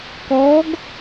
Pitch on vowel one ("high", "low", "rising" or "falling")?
rising